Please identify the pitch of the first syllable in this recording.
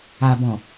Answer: low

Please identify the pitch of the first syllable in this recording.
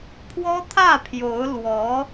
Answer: high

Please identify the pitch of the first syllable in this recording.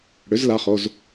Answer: rising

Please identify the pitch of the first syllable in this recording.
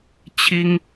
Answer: high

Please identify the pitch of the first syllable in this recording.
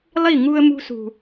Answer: falling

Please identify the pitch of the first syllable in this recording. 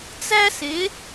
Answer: high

